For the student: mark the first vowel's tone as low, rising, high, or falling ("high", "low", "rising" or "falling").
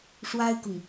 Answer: high